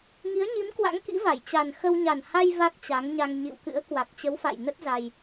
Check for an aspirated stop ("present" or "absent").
absent